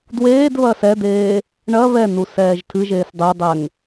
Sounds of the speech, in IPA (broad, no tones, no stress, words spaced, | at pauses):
dweːdβɐ sɛd̪eː | ɳɐ βɛnusɛːʒ tʰɨʒeːs dˤedˤɛŋ